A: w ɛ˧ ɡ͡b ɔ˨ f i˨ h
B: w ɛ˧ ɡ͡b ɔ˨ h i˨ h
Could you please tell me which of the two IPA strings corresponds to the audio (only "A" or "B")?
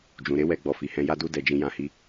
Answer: A